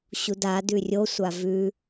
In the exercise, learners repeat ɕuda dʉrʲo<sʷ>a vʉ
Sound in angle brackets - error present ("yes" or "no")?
no